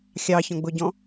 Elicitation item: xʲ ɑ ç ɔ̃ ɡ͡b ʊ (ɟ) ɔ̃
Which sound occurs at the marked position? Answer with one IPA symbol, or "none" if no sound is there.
ɟ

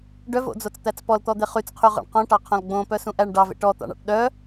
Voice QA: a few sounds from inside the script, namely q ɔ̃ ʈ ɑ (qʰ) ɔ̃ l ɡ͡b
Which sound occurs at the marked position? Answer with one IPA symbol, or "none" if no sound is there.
qʰ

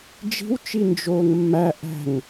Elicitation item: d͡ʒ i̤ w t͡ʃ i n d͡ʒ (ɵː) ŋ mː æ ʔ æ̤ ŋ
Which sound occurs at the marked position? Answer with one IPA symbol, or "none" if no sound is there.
oː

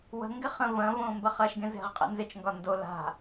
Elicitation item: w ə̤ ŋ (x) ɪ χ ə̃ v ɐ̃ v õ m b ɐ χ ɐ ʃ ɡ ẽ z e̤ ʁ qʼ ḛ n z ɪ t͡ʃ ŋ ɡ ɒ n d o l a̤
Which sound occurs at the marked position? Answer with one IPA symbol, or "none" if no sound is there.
ɡ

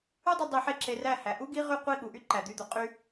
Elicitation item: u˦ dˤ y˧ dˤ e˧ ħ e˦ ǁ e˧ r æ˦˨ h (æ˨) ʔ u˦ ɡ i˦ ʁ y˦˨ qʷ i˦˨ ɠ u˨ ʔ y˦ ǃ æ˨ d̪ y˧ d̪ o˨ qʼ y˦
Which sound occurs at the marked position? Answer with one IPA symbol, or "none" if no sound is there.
æ˨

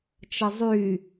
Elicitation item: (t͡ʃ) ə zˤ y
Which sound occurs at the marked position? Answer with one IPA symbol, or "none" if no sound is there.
t͡ʃ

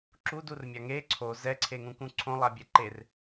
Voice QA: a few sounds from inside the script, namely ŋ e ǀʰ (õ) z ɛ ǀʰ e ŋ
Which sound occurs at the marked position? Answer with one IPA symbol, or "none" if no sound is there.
o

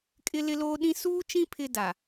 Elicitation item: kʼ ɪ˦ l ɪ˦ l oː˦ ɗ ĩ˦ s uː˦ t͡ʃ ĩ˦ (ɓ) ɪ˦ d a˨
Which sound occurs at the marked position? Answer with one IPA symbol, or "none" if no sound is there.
pʰ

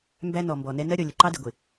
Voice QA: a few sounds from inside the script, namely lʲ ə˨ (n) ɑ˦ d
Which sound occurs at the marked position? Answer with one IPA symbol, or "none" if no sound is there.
ǃ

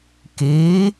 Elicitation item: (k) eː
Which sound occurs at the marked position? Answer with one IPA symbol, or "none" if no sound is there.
k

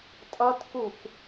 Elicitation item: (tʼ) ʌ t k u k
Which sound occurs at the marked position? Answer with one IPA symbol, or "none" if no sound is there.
tʼ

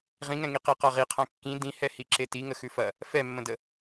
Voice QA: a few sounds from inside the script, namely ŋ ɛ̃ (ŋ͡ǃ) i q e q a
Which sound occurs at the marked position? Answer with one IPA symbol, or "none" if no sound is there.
ŋ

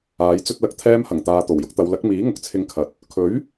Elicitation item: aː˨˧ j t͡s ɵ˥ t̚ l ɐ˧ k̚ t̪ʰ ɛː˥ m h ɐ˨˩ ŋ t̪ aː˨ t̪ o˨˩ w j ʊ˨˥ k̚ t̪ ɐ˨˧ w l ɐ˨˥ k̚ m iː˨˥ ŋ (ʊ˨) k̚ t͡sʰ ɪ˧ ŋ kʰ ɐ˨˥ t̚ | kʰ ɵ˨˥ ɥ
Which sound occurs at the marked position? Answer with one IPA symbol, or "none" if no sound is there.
ʊ˨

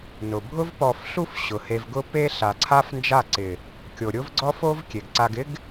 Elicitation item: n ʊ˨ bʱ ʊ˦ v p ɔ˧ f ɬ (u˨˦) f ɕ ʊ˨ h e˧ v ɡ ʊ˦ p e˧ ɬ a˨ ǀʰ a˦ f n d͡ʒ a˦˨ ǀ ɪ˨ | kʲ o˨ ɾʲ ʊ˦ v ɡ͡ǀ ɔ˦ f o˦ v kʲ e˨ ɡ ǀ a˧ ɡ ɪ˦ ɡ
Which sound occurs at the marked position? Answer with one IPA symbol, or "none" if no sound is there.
u˦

